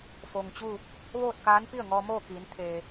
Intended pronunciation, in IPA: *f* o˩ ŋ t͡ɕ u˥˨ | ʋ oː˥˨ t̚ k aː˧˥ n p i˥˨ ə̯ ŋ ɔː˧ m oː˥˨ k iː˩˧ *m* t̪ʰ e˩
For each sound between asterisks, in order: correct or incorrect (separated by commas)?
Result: correct, incorrect